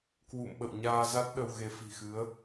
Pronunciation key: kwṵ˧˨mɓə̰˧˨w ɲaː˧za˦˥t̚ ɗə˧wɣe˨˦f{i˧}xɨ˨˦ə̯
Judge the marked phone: incorrect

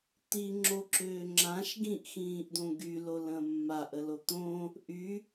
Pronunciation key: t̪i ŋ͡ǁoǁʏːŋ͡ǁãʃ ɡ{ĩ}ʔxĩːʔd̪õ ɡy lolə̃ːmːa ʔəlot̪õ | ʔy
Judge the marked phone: correct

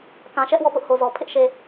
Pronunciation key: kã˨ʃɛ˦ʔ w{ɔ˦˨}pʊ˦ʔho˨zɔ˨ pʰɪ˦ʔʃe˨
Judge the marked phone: correct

